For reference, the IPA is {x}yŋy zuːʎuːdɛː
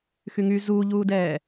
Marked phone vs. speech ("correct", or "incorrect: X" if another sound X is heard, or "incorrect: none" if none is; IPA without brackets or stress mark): correct